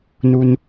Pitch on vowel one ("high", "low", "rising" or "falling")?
low